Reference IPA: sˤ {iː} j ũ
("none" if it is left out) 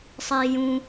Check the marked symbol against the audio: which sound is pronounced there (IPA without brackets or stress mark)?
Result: iː